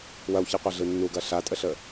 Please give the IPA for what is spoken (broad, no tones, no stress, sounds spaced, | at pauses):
w ɐ w ç i qʷ a ɮ ɯ nː u ɡ ɐ ɬ a tʼ ə ɬ ə